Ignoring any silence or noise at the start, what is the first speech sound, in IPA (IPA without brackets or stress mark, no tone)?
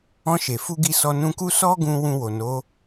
ɔ̃